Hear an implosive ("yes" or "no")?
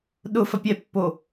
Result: yes